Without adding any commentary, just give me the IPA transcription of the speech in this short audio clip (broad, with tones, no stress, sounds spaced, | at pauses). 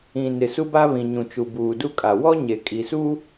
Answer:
ĩ˨ n ɪ˨ s u˦ b a˦ β ĩ˨ ɲ ũ˨ t͡ʃ u˨ b uː˨ d u˦ kʼ a˨ w ɔ˦ ɲ e˨ kʼ i˨ s u˦